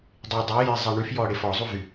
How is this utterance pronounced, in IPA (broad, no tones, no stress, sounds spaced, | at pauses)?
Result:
dˤ e dˤ i j e zˤ ɛ ɳ y f j ɔ ɽ e f ɔ zˤ u v y